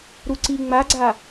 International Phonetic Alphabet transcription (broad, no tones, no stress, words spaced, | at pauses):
ɾuǀi ŋ͡maɡ͡ǀa